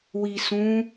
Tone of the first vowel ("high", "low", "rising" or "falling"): low